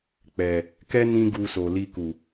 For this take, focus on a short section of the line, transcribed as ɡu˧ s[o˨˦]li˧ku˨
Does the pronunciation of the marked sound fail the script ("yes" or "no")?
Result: yes